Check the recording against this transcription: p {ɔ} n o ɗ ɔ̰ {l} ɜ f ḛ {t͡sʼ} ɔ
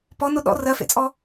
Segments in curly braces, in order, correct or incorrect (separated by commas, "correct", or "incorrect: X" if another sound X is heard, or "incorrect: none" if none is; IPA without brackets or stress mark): correct, incorrect: r, correct